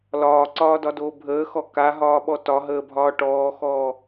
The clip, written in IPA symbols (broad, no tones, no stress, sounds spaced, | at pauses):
l ɒː ǀ ɒː d ɒ d oː bʱ əː x ɔ k a ɦ ɒː ɓ ɔ t ɒ ɦ əː bʱ ɒː ʈ ɔː x ɔː